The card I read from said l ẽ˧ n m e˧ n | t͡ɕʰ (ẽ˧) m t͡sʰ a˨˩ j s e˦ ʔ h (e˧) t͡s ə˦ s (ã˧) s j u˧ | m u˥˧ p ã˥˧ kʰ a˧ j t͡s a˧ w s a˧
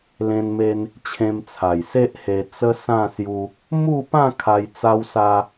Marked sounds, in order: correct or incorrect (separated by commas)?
correct, correct, incorrect